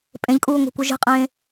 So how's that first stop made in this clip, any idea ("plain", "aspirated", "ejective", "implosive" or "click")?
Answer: ejective